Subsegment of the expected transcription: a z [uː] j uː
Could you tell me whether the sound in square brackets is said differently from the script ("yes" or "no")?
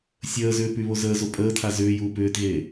yes